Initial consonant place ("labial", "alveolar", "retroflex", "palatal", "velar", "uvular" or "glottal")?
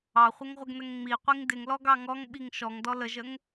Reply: uvular